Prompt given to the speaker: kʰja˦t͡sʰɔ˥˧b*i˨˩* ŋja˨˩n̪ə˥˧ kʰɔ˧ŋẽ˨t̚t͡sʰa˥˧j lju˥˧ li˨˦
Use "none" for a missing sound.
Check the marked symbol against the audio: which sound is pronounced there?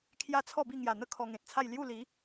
i˥˧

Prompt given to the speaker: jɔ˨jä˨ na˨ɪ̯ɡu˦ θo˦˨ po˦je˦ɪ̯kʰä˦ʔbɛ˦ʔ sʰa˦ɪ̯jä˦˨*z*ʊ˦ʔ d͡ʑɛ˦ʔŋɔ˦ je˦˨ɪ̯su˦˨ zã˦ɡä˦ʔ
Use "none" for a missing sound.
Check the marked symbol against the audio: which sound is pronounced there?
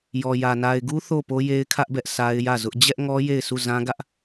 z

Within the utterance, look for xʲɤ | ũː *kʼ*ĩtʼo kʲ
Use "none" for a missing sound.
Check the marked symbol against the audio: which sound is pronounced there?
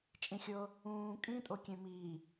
kʼ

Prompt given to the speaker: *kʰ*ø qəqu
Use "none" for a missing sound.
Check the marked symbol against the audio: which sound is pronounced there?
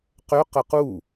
q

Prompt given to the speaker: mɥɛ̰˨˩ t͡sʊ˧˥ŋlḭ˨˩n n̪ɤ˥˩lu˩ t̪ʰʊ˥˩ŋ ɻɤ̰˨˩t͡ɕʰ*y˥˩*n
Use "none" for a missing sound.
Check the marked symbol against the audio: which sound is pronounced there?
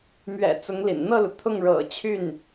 y˥˩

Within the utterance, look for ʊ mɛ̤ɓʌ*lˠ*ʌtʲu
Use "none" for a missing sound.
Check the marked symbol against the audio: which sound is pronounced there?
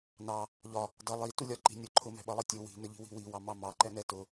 lˠ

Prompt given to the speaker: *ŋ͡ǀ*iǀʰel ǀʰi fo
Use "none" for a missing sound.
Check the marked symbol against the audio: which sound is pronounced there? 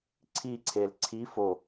ǀʰ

